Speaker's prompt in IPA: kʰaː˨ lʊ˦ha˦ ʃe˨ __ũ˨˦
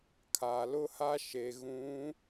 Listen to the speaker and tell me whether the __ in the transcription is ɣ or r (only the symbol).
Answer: ɣ